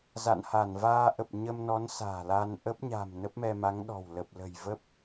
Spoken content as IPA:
za̰˧˨nha˧˩nvaː˧ʔə˨˩p̚ ɲə˧mnɔ˨˦n sa̤ː˨˩la˧n ʔə˦˥p̚ɲa̤˨˩m nə˦˥p̚mɛ˧ma˨˦ŋɗɔ̤˨˩w lə˨˩p̚lə̤˨˩jvə˦˥p̚

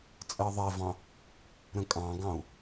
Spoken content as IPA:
t͡sʼɜðˤɛvɑ̃ | ɾə̃kʼɑ̃ɡɑ̃u̯

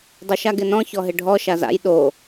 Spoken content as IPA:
dˤʊʃaɡɪnɔ̃ çɔɦɪɖʱɔ ʃaza̰j ɗo

